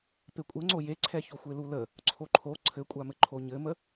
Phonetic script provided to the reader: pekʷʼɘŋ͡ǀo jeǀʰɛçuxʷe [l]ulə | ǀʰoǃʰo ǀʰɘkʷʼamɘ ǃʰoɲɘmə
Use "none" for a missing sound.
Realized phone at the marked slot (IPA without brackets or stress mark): l